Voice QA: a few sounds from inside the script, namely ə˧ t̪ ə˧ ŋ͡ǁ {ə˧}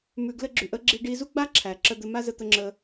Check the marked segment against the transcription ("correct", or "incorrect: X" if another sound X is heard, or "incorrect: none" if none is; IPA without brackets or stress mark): correct